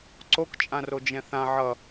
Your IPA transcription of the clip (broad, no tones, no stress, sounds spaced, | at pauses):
ǀ o k t͡ʃʼ ã r o d͡ʒ ɛ̃ θ ã ʕ ʌ